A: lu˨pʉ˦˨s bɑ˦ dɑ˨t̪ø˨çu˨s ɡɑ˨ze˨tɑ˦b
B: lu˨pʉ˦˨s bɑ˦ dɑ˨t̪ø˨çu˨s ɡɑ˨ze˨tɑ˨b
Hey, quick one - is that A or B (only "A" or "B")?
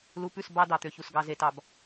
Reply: B